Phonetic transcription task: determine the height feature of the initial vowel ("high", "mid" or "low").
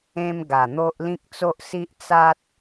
mid